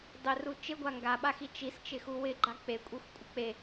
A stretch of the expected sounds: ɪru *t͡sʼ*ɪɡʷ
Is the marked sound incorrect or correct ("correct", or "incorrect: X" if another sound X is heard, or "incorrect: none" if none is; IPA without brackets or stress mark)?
incorrect: t͡ʃ